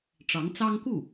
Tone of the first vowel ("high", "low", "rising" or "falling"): rising